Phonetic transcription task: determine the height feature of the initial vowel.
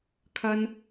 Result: low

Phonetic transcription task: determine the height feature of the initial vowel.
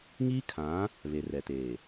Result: high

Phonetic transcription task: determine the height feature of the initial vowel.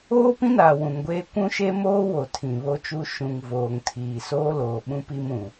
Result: mid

